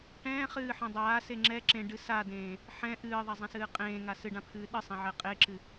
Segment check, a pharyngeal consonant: present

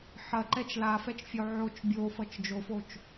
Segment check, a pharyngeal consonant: present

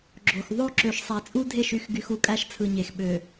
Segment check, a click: present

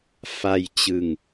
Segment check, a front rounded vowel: absent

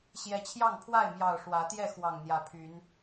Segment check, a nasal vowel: absent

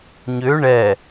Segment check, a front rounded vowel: present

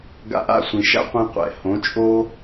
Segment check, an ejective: present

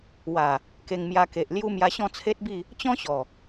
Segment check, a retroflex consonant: absent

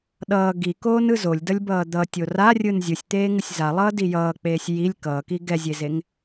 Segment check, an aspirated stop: absent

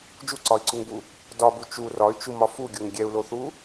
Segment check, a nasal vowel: absent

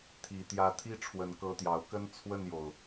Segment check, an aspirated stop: present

